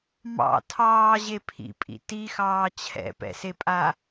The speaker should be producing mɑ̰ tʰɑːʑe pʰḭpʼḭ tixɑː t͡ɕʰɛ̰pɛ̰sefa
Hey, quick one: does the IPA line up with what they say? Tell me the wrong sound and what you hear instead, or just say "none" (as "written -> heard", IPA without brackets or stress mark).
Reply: f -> pʼ